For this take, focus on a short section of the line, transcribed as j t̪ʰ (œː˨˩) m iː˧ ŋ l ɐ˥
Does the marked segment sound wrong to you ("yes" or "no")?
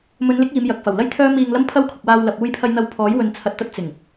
yes